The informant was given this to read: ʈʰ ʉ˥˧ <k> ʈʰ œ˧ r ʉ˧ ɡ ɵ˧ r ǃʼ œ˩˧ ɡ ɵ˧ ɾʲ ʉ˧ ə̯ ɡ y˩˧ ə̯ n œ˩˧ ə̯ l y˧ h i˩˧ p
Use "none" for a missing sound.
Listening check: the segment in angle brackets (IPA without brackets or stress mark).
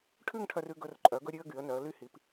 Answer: ŋ